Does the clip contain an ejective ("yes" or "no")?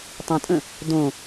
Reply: yes